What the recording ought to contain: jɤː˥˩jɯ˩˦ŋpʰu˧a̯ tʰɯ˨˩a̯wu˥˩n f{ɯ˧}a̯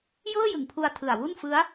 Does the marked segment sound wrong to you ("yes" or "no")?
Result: yes